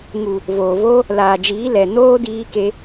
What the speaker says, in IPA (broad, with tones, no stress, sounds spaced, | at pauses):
ŋ u˨ | v oː˨ v o˦ | l aː˨ d͡ʒ iː˨˦ l ɛ˨ n oː˦ d iː˦ k e˦